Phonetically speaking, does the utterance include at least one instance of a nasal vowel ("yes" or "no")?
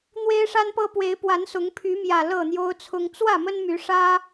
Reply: no